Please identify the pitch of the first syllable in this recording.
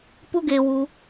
falling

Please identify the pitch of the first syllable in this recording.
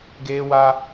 high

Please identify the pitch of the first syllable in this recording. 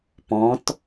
rising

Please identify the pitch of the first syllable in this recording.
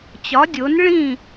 rising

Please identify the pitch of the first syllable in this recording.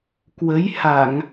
rising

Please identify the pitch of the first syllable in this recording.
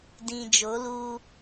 low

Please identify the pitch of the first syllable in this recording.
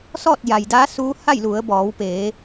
falling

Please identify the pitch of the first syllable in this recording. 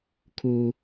high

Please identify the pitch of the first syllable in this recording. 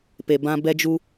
low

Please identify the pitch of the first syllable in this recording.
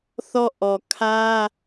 falling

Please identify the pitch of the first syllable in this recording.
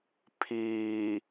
low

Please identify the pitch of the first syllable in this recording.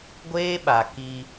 high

